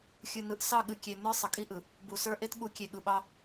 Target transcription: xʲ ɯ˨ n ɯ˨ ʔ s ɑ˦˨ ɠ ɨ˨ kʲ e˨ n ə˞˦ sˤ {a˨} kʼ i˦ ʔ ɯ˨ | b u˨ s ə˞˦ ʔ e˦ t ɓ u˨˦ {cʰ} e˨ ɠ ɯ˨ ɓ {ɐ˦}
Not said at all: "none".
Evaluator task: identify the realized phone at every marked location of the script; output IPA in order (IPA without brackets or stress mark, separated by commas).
ə˨, kʲ, ɑ˦